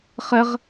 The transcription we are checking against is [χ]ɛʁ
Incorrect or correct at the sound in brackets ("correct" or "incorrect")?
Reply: correct